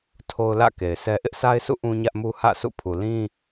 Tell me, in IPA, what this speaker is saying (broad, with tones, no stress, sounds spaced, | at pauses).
tʰ o˦ ʊ̯ l ä̰˦˨ k e˨ ɪ̯ sʰ ɛ˦ ʔ ɪ˦ ʔ s a˦ ɪ̯ s ṵ˦˨ ʔ ũ˦ ɲ ä˦ ʔ m u˦ h ä̰˦˨ s ṵ˦˨ pʰ u˨ l ĩ˦